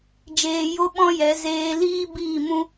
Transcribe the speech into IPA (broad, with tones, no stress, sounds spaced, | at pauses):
d͡ʒ eː˧ j o˦ ɓ ɔ̃˦ j ɛ˨˦ z eː˧ l iː˦ b iː˦˨ m ũ˦